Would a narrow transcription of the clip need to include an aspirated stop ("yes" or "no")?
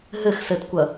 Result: no